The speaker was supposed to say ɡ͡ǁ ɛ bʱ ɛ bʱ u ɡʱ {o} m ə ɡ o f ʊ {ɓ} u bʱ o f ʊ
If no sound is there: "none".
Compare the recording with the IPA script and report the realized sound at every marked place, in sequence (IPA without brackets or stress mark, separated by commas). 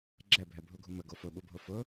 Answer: u, ɓ